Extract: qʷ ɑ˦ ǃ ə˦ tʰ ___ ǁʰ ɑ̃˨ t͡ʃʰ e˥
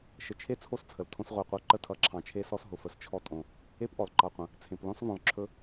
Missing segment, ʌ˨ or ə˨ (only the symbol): ʌ˨